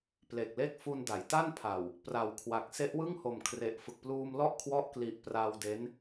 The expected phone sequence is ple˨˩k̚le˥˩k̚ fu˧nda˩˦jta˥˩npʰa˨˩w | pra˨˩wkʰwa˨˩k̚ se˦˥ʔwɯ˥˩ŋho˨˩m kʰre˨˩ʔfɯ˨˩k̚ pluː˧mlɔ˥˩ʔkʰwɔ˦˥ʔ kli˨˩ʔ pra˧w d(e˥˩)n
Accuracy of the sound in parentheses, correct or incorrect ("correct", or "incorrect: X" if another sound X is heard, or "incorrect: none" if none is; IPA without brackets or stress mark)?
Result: incorrect: e˦˥